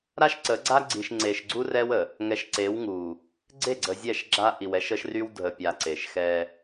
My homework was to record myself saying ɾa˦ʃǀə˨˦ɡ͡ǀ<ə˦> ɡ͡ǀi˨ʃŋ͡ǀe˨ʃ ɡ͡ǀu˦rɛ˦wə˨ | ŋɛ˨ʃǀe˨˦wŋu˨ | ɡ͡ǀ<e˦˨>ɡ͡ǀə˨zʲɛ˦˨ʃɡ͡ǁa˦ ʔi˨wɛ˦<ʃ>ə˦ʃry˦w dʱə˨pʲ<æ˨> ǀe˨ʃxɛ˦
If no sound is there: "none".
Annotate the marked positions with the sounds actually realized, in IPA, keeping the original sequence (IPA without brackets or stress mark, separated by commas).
a˦, e˦˨, ʃ, a˨